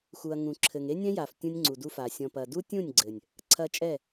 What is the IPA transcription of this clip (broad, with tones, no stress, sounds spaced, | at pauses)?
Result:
x u˨ ɐ̯ ŋ ũ˨ ǁʰ ɘ˨ ŋ e˦ nʲ ɛ̃˦ j a˨ f tʲ ũ˧ nʲ ŋ͡ǀ u˨ d u˧ f a˨ sʲ ɔ̃˨ p ɐ˨ d u˦ tʲ ũ˦˨ nʲ ɡ͡ǀ ɘ˨ nʲ | ǀʰ ɐ˧ t͡ʃʼ ɛ˦˨